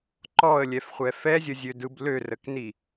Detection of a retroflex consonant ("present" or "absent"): absent